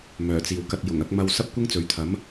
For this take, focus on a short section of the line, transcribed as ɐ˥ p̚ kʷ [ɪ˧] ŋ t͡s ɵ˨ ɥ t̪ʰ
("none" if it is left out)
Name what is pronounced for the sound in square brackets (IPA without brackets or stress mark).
ɪ˥